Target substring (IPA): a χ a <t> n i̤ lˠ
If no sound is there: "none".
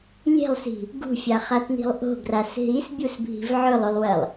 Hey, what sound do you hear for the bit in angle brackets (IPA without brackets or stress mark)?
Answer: t